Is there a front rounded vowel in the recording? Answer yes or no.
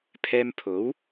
no